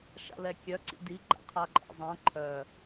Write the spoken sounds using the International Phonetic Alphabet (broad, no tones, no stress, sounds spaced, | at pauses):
ʃ a̰ l ɛ kʲ œ ǀ ḭ d i ɡ͡ǃ a̰ qʰ a ǃʼ ɛ̰ zˤ ã ǃʰ œ